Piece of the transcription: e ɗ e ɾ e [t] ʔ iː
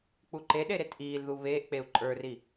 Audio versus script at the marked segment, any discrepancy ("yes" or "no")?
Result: no